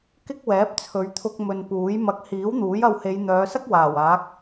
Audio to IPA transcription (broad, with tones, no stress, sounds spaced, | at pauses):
k ɪ˥ k̚ w ɛː˨˥ p̚ t͡sʰ ɵ˨˧ ɥ t̪ʰ ʊ˧ k̚ m ɵ˨ n p uː˨˥ j m ɐ˧ k̚ h iː˨˥ w n̪ uː˨˥ j ɐ˧ w h e˨˧ j n̪ œː˨˧ s ɐ˥ k̚ w aː˨˩ w aː˨˥ k̚